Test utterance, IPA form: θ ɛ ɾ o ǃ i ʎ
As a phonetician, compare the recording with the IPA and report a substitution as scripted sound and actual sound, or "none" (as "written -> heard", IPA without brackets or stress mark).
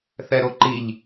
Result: none